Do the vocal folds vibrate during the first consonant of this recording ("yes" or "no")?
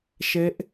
no